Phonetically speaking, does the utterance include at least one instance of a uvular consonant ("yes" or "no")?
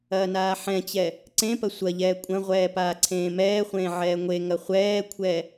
yes